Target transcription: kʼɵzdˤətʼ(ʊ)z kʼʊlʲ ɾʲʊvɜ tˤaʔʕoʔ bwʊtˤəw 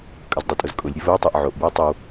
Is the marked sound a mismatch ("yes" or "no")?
no